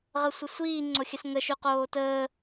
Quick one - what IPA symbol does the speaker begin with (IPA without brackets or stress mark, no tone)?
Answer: ʁ